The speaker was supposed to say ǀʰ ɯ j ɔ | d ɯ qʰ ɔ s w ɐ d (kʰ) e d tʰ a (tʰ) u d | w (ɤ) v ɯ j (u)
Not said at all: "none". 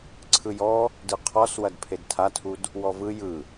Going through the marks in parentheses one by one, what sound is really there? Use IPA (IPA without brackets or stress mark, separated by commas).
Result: pʰ, tʰ, ɔ, ɯ